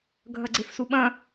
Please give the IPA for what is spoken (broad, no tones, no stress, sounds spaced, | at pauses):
ɡʱ ɐ ɡ͡ǀ e f s u ɓ ɐ̃